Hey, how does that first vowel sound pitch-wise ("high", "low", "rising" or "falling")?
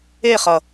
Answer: falling